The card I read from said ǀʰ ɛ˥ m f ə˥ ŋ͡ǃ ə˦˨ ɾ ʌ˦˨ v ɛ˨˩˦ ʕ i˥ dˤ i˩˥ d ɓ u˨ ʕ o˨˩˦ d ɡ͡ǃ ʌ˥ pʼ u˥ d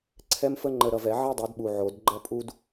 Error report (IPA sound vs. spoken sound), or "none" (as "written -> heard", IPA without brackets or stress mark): none